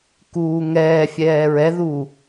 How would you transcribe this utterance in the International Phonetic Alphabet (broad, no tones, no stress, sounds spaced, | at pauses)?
k uː ŋ ɛː fʲ ɛː ɹ ɛ ð uː